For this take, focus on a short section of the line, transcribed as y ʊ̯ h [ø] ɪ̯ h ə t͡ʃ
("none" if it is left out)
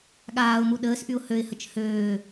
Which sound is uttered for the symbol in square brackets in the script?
ø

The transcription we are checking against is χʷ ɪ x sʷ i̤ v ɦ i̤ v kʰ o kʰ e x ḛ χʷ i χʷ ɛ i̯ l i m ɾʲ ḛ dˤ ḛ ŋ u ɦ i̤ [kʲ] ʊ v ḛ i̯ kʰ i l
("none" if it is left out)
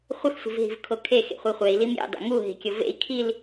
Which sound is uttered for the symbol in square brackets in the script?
kʲ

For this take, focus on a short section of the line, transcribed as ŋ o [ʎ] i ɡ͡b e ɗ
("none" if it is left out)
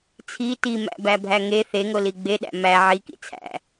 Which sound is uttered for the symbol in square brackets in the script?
l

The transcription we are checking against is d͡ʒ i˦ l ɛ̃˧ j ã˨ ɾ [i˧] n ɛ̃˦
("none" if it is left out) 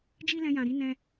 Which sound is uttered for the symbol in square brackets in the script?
i˧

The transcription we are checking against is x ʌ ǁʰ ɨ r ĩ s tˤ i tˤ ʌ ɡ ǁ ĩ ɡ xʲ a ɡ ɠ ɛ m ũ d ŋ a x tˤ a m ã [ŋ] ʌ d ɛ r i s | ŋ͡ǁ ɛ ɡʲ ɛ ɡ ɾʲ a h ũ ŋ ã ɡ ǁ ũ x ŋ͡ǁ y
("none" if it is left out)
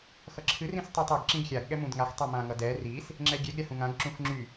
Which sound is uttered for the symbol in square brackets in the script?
ŋ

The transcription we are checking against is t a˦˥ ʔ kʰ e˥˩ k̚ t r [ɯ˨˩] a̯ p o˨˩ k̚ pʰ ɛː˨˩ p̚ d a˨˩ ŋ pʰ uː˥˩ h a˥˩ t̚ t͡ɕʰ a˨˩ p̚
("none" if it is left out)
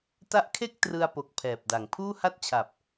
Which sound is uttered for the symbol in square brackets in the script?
ɯ˧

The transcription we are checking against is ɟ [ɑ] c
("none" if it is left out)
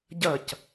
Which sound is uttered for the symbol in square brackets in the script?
ɐ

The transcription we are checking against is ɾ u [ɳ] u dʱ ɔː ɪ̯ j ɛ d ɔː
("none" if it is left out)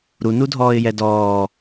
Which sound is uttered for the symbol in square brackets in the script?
n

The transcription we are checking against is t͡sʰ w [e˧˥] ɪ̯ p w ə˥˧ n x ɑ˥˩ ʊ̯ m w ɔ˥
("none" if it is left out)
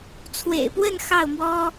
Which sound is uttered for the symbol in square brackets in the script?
ḛ˨˩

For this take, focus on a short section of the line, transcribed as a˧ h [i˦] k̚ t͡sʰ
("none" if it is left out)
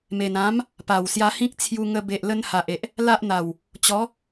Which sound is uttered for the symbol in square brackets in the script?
ĩ˦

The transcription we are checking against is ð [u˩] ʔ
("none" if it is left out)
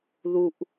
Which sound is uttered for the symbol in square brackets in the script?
u˩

